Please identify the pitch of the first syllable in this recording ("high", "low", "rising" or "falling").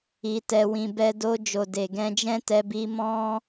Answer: low